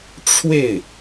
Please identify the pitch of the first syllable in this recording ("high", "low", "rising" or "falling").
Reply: falling